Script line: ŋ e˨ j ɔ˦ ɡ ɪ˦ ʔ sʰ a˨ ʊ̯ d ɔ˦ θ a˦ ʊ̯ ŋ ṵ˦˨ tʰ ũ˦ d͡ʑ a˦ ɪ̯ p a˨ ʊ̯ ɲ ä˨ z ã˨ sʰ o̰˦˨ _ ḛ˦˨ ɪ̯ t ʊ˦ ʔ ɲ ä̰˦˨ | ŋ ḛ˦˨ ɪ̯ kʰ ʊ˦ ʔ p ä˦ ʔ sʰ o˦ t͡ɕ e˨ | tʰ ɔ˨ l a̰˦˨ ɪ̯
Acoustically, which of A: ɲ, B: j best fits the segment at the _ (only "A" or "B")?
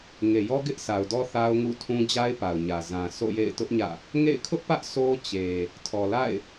B